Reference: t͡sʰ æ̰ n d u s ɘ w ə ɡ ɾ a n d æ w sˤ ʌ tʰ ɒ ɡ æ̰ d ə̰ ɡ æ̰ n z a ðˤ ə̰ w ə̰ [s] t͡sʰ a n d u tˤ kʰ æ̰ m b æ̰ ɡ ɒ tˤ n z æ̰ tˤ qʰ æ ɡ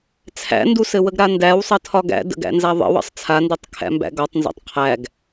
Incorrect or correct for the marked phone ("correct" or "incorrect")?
incorrect